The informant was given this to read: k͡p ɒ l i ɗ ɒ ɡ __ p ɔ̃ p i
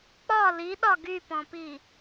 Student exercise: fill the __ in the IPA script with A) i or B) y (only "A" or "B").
B